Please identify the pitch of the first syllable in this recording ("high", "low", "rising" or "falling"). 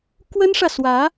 high